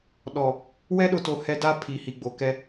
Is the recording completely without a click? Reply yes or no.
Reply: yes